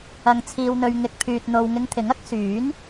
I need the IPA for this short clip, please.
ɐ˧ ŋ t͡sʰ iː˧ w n̪ ɵ˧ ɥ ŋ ɪ˧ k̚ pʰ yː˧ t̚ n̪ o˧ w ŋ ɪ˧ ŋ t̪ʰ ɪ˨˥ ŋ ɐ˥ k̚ s yː˨˥ n

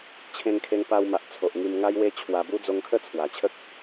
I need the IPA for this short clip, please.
t͡ɕʰ ẽ˧ ŋ kʰ e˧ ŋ p a˧ w m a˨ ʔ t͡sʰ o˨ ʔ ŋ i˧ m ŋ a˦ j w e˦ t͡ɕʰ w a˧ b u˦ d͡z o˧ ŋ kʰ ə˥˧ t͡sʰ w a˨˩ t͡ɕʰ ə˦ k̚

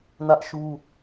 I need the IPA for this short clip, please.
n ä˦ ʔ ʃ u˦

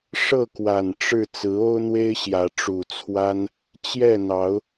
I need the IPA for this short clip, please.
ʂ ɤ˥˨ k w a˨˩ n ʈ͡ʂ ɻ̩˥˨ t͡s ɹ̩˨˦ o˦ ʊ̯ n̪ w e˦ ɪ̯ ɕ j ä˨˦ ʈ͡ʂ u˨˩ t͡sʰ w a˦ n | t͡ɕ j ɛ˥˨ n̪ ɑ˨˦ ʊ̯

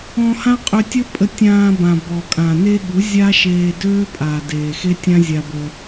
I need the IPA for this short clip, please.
ɔ̃˧ h ã˦ qʼ ø˧ tʲ ə˦ pʼ ə˧ tʲ ãː˧ b ã˨ b ɔ˨ kʼ ã˨ n e˦ ɠ u˨˦ zʲ a˦ ʃ eː˧ d øː˦ pʼ aː˨ d eː˨ x e˦ tʲ ã˦ zʲ a˧ b ə˧

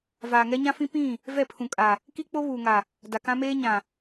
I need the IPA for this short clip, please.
v aː˨ ŋ ɛ˦ ɲ ã˦ f ĩ˦ p ĩ˦˨ | v ɛ˦˨ pʰ ũ˨ kʼ a˨ | k i˦ k͡p o˦ β uː˨ ŋ a˨ | d a˨ k ã˦ m eː˦ ɲ ã˨

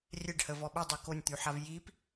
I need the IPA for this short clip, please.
rʲ ɛ ɖ h ə v ɔ ɓ ə dˤ ɛ k o nʲ t̪ y ħ a v j i p

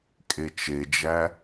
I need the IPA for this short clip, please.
kʼ e t͡ʃ e d͡ʒ æ

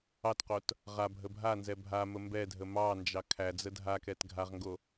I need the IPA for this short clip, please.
ɑ t q o t | ʁ a bʱ ə bʱ a n z ɛ bʱ a m ə m b ɛ dʱ ə m ɑ n d͡ʒ ɑ kʰ æ d͡z ə dʱ a k ɛ t ɡʱ a ʁ ŋ ɡ o

